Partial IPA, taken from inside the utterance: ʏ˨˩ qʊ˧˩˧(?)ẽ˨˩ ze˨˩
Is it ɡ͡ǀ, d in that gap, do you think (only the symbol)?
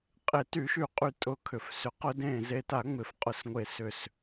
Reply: d